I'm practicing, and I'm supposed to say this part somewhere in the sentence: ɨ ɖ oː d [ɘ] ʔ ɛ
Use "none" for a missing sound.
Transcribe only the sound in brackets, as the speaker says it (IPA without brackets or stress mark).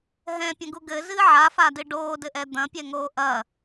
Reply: ɘ